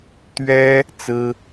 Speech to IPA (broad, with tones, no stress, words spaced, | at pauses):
t̪ɥɛ˥ | t͡sɹ̩˥